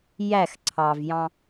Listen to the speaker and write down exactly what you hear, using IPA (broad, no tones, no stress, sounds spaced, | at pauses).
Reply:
j æ x ǀʰ ɑ v j ɑ̃